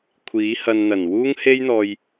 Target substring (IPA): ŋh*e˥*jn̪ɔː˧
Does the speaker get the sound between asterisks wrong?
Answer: no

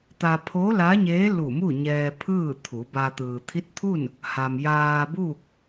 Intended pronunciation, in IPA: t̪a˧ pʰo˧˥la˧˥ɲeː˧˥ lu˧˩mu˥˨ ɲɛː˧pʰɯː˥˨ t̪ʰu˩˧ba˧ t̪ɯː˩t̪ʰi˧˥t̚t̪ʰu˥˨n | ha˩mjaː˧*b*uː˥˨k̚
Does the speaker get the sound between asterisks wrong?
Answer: no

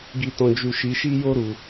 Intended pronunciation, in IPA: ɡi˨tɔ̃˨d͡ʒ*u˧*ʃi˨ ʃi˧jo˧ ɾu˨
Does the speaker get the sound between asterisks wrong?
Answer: yes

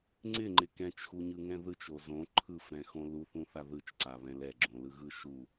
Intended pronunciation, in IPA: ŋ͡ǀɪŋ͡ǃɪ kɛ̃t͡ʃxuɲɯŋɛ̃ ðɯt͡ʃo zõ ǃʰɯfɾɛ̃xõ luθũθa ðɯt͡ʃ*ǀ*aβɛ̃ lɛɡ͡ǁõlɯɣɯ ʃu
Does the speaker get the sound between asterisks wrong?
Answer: no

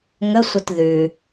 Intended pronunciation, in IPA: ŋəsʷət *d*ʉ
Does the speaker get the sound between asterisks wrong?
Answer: yes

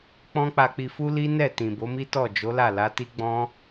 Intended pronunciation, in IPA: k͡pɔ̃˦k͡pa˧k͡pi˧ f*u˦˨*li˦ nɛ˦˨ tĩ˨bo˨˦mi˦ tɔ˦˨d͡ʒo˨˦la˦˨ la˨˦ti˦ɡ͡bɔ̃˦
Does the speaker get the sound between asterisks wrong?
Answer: yes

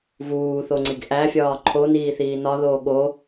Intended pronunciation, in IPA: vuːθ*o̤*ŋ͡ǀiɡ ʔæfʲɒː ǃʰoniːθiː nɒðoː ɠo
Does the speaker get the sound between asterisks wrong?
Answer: yes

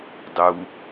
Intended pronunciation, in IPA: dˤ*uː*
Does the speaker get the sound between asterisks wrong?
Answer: yes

